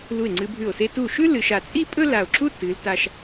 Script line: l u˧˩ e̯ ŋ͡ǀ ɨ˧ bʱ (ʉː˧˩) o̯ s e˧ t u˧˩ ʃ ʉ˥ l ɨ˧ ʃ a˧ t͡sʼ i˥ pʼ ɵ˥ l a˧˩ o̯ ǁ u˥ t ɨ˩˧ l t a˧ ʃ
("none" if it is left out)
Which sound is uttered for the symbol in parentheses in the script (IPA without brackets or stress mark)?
ʉ˧˩